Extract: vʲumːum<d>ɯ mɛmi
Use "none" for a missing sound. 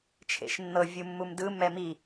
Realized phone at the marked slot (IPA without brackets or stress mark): d